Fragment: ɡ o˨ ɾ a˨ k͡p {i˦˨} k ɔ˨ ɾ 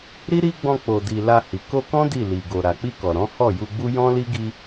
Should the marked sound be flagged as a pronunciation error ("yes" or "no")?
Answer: yes